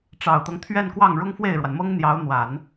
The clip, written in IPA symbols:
ʈ͡ʂɑ˨˩ʊ̯t̪ɤ˦ŋ t̪ʰɥɛ˥˧nkwɑ˥˩ŋ ɻʊ˥ŋfwe˥˩ɪ̯ɻwa˩nmɤ˥ŋ n̪jɑ˧˥ʊ̯n̪wa˨˩˦n

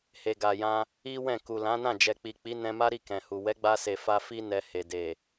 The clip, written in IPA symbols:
he˨ɡa˨jã˧ | i˦wɛ̃˦˨ ku˨lã˨˦nã˦˨ d͡ʒɛ˨k͡pi˨k͡pi˨˦ nɛ̃˧ma˦ɾi˦˨ kɛ̃˨hu˨ wɛ˨˦ɡ͡ba˧se˨ fa˧fi˦ nɛ˧he˨ de˨

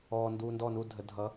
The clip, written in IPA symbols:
ɔː˨nduː˨ndɔ˦˨nu˦˨ dʱə˨dʱʌ˨˦

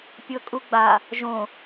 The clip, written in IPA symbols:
pʲɤkʼuɡ͡ba | ʒõ

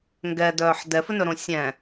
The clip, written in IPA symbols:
ŋɡɛdœːħ dɛfɵnɵɾõ sʲɛ̃

